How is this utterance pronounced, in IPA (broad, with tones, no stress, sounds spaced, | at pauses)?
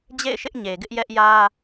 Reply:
d͡ʑ ḛ˦˨ ɪ̯ ʃ ɪ˦ ʔ ɲ e˨ ɡ ɪ˦ ʔ j ɛ˦ ʔ j ä˦